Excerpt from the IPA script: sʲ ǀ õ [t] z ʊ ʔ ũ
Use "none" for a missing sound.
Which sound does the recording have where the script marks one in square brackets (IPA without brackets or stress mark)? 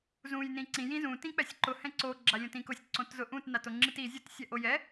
t